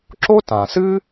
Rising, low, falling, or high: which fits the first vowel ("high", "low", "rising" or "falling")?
high